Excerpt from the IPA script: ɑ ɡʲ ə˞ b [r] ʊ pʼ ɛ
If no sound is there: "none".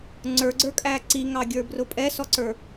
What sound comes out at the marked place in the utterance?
r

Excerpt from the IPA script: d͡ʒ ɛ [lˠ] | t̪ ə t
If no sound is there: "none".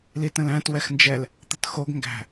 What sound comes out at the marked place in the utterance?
l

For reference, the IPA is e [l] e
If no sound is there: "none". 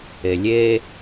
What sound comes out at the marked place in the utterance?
lʲ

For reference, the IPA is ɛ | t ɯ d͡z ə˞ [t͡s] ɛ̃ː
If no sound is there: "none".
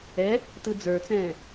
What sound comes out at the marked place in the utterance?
t͡s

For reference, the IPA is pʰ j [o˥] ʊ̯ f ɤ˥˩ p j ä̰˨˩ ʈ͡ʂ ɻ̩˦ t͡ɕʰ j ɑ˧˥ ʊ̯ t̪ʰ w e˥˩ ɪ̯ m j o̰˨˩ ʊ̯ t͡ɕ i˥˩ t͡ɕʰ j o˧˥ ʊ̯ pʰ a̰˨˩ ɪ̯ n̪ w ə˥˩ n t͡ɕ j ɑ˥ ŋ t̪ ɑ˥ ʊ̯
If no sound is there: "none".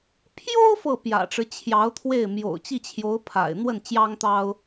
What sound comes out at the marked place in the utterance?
o˥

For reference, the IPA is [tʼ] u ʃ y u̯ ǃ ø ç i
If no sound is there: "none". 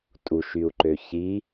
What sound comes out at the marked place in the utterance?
tʼ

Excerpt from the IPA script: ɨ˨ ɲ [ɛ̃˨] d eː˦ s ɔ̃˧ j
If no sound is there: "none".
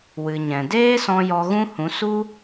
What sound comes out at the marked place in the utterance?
ɛ̃˨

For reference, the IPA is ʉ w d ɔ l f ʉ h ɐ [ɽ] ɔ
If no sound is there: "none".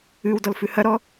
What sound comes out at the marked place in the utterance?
ɾ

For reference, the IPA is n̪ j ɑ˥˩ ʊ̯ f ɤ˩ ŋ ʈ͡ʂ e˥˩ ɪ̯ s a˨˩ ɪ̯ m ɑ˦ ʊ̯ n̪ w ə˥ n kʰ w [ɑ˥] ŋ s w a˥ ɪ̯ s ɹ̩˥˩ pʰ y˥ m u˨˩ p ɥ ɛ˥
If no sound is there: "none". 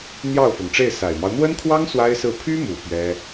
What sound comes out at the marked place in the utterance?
ɑ˥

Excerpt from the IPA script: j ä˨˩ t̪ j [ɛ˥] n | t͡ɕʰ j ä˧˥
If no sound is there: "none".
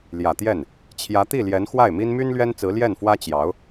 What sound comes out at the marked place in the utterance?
ɛ˥˩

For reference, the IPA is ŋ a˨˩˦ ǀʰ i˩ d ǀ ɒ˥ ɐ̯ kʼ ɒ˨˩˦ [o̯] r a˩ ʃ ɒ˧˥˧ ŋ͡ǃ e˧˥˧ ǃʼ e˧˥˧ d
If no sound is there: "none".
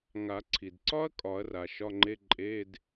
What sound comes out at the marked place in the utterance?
ɐ̯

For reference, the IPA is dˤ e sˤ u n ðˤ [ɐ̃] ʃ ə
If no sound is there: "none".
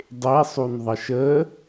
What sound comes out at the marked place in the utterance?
ɐ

